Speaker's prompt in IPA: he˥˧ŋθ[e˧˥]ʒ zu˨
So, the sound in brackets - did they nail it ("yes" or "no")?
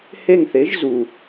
yes